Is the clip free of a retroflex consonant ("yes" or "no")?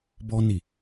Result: yes